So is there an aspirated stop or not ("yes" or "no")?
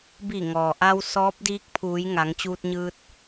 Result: yes